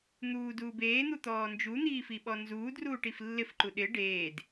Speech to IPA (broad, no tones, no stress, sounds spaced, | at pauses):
n̪ uː d uː b eː n̪ u t̪ ɔː n d͡ʒ u n̪ iː f i ɓ ɔ n z uː d r uː ʈ i f lː ɪ f ǃ u ɗ ɪ ɖ eː d